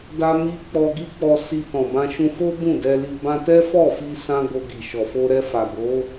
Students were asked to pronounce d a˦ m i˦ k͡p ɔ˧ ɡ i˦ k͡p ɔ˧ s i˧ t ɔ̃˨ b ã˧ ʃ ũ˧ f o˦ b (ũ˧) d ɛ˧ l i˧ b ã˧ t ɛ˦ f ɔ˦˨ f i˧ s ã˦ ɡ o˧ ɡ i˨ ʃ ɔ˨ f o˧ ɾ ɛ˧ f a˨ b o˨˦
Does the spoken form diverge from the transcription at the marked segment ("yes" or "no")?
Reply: yes